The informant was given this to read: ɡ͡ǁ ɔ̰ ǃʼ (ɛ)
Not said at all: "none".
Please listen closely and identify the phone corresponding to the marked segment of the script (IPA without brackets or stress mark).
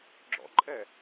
ɛ